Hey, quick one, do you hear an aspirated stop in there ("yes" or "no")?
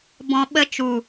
no